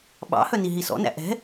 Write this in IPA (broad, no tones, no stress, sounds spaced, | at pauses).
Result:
ɓ ɑ̰ h œ n i ɦ i s ɔ̰ n æ̰ ʔ ɛ̤